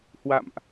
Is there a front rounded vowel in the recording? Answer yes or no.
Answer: no